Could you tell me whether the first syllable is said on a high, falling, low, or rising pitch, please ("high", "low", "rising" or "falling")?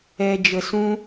high